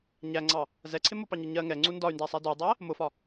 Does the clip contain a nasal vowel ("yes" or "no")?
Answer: no